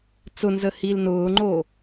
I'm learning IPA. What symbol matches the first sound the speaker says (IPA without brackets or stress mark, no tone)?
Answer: t͡s